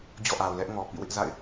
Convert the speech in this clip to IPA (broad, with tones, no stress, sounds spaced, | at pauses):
d͡ʑ ɔ̰˦˨ ʔ a˨ ʊ̯ l ɛ˦ ʔ ŋ ɔ˨ p ḭ˦˨ w ɪ˦ ʔ z a̰˦˨ ɪ̯